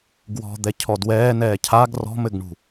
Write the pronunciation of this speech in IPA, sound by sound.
ɡ w ɔ̤ d̪ ɛ cʰ ɔ d w ɛː n ɛː cʰ a ɡ r ɔ̤ m ɘ ɡ ɳ ṳ

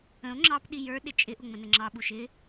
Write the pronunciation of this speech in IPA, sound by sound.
ə̃ o̯ ŋ͡ǁ ɑ p ɗ i j ə˞ ɗ ɪ t͡ʃʼ ɪ ʔ ʊ ŋ͡m ə̃ n ə ŋ͡ǁ ɑ ɓ u ʃ ɪ

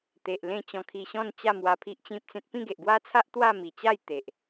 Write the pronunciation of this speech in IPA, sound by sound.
t̪ e˨ ʔ l ẽ˥˧ t͡ɕ ɔ̃˧ kʰ i˧ ɕ ɔ̃˥˧ n t͡ɕ a˥˧ m w a˧ pʰ i˦ ʔ t͡ɕ ĩ˦ p̚ t͡s ẽ˦ t̚ p ĩ˥˧ ɡ e˨ ʔ ɡ w a˦ t͡sʰ a˦ ʔ t̪ w a˥˧ m i˨˩ t͡ɕ a˥˧ j t̪ e˨ ʔ

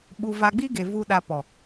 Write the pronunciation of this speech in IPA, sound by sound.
ɓ u˧ v a˧ ɡ͡b i˦ ɡ e˨ v u˦ ɗ a˧ p ɔ˨

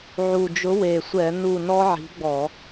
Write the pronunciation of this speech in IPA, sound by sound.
ʕ u˨˩ d͡ʒ ʊ˨˥ w e˨˩ sʷ ɛ˧˩˧ n u˦˨ n ɔ˦˥ ʕ i̤˨˥ ɡ͡b ɔ˧˩˧

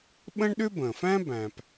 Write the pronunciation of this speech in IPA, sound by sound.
ɓ ə̃˥ ɳ ɗ ʏ˥ b ə̃˩ f æ̃˥ b æ̃˩ p

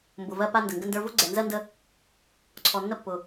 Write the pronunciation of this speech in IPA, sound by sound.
m b ʊ˨ v ɜ˦ p a˦ n d ə˨ ŋ ɡ ə˦ n d ə˞˦ v ʊ˦ ɡ͡ǀ ɛ˨ n z ɜ˦ n d ə˦ | ǀʰ ɔ˨ nː ə˦ pː ʊ˨

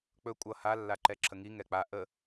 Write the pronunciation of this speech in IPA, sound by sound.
k͡p ɵ kʷʼ ʌ h a lː a ǃ ɛ ǁʰ ə ŋ i ŋ ɛ k͡p a ʔ ə

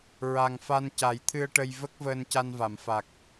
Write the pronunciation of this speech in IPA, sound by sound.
ɹ a˨˩ ŋ f a˧ n c a˨˩˦ j t̪ʰ ɨ˧ ə̯ ʈ ə˧ j v ə˦˥ k̚ v əː˧ n c a˧ n v a˨˩˨ m f a˨˩ k̚

